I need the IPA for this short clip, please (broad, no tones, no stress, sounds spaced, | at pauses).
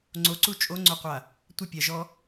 ŋ͡ǀ o ǀ u t͡ʃʼ o ŋ͡ǀ o qʷ a | tʷ ə pʲ a ʒ ɔ